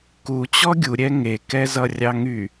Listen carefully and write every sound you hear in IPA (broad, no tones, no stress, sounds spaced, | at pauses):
k u t͡ɕ ɔ ɡʲ u ɾʲ ɛ ŋ e k ɛ z ʌ rʲ ɑ ŋ y